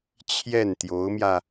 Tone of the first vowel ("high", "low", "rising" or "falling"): falling